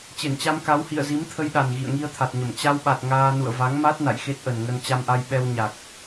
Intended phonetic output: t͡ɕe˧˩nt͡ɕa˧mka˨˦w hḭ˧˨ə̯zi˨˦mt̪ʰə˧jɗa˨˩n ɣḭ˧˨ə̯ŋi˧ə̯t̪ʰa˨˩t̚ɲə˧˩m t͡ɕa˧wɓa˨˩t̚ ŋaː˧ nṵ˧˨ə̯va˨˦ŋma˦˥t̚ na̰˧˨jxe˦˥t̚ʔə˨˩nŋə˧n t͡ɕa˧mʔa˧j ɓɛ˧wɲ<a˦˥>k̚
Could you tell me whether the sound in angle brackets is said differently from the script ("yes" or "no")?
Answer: yes